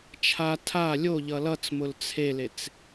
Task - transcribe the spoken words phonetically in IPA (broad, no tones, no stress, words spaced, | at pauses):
t͡ʃʰa tʰa lʲoʎʌ lʌt͡smʊl t͡sʰelet͡s